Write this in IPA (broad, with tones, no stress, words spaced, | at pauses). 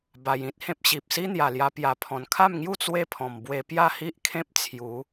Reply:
ba˧jĩ˦t̚hẽ˦p̚ ɕi˨p̚si˦n̪ja˨˩lja˧ pja˨˩pʰɔ̃˨˩nkʰa˥˧mŋju˥˧ t͡swe˥˧pʰɔ̃˨˩m bwe˧pja˥˧hi˦ʔkʰẽ˦p̚ t͡sʰju˨˦